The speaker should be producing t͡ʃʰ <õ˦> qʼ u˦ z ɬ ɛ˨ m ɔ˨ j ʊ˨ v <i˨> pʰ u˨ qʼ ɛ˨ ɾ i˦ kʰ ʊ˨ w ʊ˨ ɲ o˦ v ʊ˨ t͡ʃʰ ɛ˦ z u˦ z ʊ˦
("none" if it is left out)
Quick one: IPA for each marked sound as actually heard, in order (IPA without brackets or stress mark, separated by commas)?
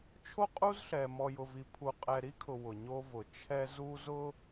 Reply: o˦, i˨